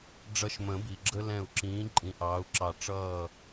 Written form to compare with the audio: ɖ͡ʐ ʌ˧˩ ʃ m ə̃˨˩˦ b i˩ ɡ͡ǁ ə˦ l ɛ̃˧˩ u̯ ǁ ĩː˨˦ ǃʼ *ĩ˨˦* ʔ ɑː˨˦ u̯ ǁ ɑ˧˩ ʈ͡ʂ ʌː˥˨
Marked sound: correct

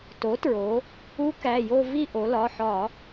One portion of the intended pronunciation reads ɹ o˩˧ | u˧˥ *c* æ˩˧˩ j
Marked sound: incorrect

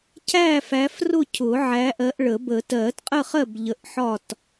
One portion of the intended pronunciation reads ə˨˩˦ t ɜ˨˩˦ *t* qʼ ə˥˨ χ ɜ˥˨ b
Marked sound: correct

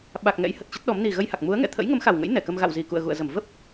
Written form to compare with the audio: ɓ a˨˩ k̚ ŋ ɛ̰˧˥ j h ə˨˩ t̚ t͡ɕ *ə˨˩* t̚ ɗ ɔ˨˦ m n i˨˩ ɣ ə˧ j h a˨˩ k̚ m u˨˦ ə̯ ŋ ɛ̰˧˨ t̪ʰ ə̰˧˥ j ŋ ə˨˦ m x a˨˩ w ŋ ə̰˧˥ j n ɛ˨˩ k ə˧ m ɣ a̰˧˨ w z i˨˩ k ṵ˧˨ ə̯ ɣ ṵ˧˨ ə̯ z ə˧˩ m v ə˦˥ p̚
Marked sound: incorrect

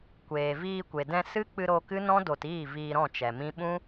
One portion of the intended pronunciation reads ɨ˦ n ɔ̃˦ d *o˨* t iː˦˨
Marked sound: correct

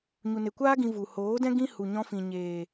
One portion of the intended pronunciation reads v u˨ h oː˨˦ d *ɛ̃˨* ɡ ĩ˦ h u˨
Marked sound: incorrect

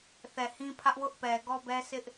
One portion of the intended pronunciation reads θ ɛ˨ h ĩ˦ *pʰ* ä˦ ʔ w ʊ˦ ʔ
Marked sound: correct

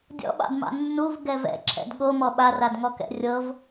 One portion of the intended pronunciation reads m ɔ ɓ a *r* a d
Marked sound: correct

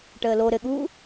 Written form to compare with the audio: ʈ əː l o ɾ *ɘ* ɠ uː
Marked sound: correct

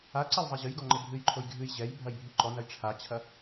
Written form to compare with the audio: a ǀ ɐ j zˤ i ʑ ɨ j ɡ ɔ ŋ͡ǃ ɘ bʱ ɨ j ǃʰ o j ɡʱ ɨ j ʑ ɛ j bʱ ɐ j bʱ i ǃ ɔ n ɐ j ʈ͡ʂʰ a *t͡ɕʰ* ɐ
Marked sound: correct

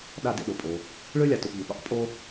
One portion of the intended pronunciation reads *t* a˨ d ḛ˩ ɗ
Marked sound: incorrect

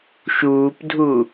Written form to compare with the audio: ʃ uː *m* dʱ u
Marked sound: incorrect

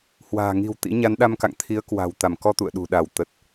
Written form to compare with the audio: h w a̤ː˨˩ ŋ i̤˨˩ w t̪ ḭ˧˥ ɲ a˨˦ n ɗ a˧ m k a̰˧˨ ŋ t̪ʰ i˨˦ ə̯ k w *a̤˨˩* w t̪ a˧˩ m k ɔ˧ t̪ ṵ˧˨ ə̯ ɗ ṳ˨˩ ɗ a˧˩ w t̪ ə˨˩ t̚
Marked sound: correct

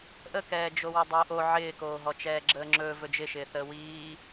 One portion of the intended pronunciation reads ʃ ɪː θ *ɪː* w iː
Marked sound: incorrect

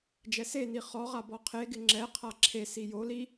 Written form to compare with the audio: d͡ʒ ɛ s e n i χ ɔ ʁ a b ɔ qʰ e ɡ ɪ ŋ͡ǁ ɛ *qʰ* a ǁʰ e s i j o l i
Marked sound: correct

